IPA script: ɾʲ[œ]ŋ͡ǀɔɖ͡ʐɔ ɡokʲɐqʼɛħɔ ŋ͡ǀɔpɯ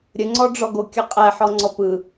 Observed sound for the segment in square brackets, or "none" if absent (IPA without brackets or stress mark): ə